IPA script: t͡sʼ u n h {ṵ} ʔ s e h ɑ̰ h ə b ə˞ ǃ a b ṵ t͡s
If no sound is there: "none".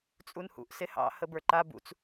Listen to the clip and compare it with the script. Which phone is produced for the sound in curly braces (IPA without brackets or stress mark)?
ṵ